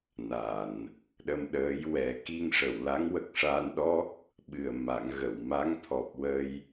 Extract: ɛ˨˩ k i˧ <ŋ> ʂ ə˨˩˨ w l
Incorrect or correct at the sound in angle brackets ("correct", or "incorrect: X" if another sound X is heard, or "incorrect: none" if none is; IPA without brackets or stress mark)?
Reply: correct